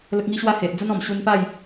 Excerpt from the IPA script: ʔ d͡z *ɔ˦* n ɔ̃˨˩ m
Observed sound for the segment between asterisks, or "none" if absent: ə˦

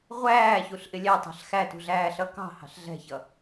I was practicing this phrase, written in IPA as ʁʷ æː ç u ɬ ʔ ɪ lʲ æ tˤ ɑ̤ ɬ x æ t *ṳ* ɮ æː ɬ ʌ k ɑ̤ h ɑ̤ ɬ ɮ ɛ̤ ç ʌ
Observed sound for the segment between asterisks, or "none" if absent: ṳ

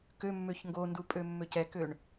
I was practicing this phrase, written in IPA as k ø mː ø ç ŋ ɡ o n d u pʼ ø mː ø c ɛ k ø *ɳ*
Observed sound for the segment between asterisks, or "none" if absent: ɳ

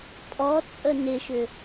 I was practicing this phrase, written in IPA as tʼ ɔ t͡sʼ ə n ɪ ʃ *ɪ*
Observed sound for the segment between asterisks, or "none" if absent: ʏ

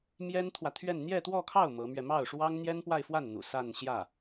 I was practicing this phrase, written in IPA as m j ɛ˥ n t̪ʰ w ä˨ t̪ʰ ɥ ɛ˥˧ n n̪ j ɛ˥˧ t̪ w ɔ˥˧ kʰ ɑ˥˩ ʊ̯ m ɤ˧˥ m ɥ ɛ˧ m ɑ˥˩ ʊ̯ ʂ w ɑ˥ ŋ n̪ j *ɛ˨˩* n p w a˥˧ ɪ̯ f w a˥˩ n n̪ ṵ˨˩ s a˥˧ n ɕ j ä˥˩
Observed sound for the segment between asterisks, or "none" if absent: ɛ˥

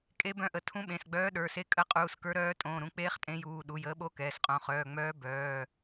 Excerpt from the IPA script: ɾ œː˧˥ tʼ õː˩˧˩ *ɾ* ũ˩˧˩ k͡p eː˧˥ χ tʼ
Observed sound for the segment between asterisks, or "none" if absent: ɾ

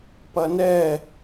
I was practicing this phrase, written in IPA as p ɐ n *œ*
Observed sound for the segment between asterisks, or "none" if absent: ɛ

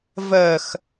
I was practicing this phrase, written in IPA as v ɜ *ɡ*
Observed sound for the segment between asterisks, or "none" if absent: x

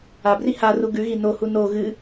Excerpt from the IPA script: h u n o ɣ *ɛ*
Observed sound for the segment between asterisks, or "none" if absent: ɨ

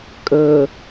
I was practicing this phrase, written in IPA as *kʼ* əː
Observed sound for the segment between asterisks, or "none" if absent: kʼ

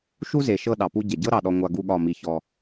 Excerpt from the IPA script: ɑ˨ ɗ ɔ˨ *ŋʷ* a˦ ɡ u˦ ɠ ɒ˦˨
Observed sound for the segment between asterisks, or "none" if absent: ŋʷ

